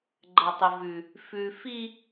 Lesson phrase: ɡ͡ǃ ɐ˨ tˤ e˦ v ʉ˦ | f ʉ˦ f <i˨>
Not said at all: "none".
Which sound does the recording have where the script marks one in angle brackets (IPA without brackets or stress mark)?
i˦